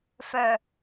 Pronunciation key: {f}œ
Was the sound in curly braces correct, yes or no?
yes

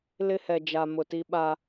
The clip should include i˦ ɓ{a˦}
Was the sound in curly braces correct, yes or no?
yes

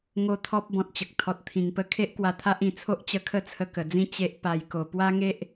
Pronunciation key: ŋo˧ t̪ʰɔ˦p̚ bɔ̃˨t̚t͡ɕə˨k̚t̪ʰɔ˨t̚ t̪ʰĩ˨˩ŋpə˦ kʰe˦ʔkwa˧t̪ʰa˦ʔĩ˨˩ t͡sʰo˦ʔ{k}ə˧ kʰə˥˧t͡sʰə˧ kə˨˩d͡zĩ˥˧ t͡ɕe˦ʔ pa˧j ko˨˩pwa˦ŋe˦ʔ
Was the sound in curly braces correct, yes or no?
no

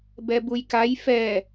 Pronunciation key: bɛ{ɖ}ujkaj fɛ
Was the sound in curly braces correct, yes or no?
no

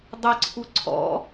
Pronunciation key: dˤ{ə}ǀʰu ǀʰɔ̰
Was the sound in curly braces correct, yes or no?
yes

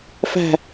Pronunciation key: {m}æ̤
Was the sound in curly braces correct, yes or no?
no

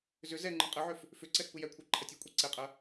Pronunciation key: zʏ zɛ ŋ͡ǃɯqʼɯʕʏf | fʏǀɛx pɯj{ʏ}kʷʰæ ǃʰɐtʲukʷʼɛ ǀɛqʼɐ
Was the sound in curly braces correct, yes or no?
no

